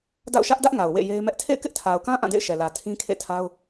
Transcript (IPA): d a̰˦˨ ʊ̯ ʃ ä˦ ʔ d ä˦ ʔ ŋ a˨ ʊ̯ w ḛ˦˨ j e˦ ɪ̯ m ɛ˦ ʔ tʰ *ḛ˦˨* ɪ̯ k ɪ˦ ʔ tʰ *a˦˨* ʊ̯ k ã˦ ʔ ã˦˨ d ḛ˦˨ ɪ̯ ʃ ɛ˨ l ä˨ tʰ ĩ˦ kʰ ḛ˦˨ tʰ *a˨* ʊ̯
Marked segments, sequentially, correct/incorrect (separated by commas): correct, incorrect, incorrect